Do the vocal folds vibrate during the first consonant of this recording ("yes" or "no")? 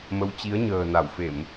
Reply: yes